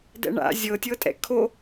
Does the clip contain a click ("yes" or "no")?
no